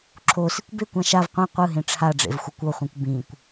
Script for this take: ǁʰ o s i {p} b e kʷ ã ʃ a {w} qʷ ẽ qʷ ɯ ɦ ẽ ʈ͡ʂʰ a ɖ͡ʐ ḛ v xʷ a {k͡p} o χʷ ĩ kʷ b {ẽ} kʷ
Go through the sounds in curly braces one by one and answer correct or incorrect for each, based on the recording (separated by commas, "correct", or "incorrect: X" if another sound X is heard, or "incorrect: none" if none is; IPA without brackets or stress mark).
incorrect: kʷ, incorrect: v, incorrect: kʷ, incorrect: ĩ